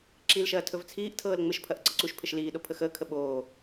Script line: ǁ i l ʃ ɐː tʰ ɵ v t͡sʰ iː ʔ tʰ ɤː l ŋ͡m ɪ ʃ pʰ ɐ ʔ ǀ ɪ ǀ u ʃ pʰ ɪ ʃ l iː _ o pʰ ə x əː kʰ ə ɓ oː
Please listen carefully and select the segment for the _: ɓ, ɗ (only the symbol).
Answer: ɗ